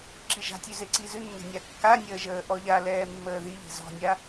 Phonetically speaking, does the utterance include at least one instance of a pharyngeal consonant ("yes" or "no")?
no